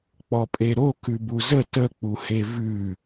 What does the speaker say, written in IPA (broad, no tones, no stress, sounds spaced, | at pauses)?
k͡p ɔ pʼ e ɾ o k ʉ b u z ə t ə k͡p u h e v ʉ